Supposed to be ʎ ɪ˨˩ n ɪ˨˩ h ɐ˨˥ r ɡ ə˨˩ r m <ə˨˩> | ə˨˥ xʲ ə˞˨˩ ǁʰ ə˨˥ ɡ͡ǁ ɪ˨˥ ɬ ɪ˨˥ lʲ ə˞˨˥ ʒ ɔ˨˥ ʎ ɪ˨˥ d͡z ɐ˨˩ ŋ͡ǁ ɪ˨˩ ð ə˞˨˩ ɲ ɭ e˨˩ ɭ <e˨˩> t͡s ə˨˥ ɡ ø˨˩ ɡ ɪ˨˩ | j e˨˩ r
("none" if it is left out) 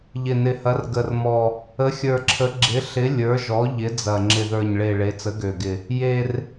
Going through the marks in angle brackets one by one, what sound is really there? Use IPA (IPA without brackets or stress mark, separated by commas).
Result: ɔ˨˩, e˨˥